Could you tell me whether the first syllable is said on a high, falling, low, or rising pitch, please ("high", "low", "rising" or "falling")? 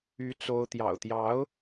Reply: rising